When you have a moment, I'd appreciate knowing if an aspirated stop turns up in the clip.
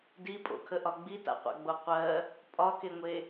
yes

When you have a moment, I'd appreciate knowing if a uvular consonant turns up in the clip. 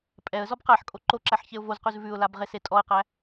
yes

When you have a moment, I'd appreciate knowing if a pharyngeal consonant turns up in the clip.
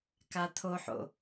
yes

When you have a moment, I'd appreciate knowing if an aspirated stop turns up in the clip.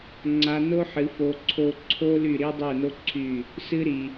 yes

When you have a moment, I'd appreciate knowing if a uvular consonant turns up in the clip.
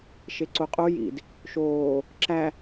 yes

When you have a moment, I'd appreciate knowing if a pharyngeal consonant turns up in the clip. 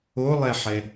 yes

